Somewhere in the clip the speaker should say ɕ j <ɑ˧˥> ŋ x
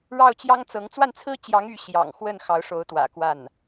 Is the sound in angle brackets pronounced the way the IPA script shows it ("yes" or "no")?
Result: no